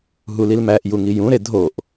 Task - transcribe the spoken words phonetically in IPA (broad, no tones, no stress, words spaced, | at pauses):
ɦulilmæʔ juŋijũɾe dʱoʔ